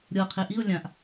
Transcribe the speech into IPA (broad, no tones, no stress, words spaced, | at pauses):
ɾʲɤ qʰeʔio̯ lʲãʔ